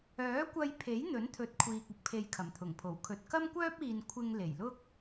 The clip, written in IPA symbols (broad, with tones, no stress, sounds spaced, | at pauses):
œː˨˥ kʷ ɐ˧ j pʰ e˨˥ j n̪ ɵ˨˥ n t̪ʰ ɵ˨˥ t̚ kʷʰ iː˨ k̚ ʊ˨˥ k̚ pʰ e˨ j kʰ ɐ˨˩ m t̪ʰ ʊ˨˩ ŋ pʰ o˨˩ w kʰ ɵ˨ t̚ k ɐ˥ m kʷ œː˥ p̚ iː˨ n kʷʰ ɪ˧ ŋ l e˨˩ j l ʊ˥ k̚